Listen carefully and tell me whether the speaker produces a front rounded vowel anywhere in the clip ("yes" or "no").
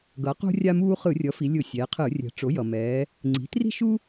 no